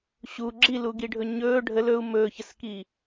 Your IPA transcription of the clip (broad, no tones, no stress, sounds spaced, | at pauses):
ɕ u ɡ͡ǁ i l u ɡ i ɖʱ ɵ ɲ ɵː ɖʱ ə l ɵ u̯ m ɵː ç ə s k i